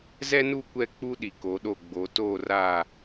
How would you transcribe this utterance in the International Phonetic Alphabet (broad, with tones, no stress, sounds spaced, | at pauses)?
z ɛ˦ n u˦˨ kʷ ɛ˦˨ k͡p u˦ ɗ i˨ k o˨˦ ɗ o˦˨ ɡ͡b o˨˦ t oː˦˨ r aː˦˨